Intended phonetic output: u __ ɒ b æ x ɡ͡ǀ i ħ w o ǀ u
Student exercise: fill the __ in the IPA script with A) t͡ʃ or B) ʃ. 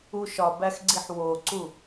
B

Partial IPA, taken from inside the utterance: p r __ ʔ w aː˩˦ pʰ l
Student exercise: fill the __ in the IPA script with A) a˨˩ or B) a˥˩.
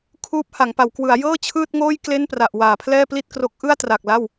A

